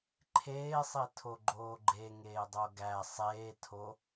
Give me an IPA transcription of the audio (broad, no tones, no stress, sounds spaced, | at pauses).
ǃʰ eː sˤ i tʰ o ɡ͡ǃ oː ɡ͡ǃ e ŋ eː dˤ o ɡ æ sˤ eː tʰ o